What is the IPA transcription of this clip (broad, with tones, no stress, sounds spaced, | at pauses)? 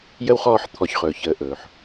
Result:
j ə˥ w χ ɔː˦ ħ t̪ʰ ɔ˨ ç χ ɵː˩ ç əː˨ ʔ ɵː˩ ħ